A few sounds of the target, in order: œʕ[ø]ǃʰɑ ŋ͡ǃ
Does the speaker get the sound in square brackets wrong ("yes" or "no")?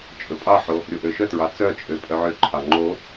no